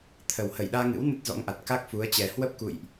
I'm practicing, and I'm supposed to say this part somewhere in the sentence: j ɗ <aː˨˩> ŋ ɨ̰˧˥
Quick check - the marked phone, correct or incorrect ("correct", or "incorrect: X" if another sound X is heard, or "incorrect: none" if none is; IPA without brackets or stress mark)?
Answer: incorrect: aː˧